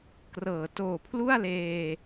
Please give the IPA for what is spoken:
k r ɤː˩˦ t oː˨˩ pʰ l u˥˩ a̯ l eː˧

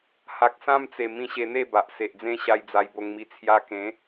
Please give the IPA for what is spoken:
h a˨ k̚ s ã˦ m t͡s e˨˩ m ĩ˧ ɕ e˧ n̪ e˥˧ b a˨ ʔ s e˨ ʔ d͡z ẽ˦ ɕ a˧ j d͡z a˧ j b o˧ ŋ m i˧ t͡sʰ j a˧ k ẽ˨˦

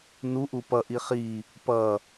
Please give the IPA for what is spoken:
n u ʔ u p ʌ ʔ i χ i | p ʌ

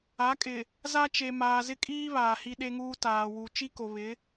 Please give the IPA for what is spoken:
a˨˦ kʼ ɪ˨ | z a˦ t͡ʃ e˨ m aː˨ z ɪ˦ kʼ iː˦ β aː˨ h i˦ ɗ e˦ ŋ uː˦ t aː˨ w u˨ t͡ʃ i˦ k o˨ β ɪ˨˦

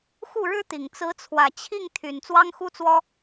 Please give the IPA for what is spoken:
x u˥˩ ɻ ɻ̩˥ t̪ i˨˩ ŋ t͡s ɹ̩˧˥ t͡sʰ w ä˨˩ t͡ɕʰ i˥˩ ŋ t̪ʰ y˨˩ n t͡s w ɑ˥ ŋ x u˥ t͡s w ɔ˥

